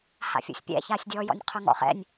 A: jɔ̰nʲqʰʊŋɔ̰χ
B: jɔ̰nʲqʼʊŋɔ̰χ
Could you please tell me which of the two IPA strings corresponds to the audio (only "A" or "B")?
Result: A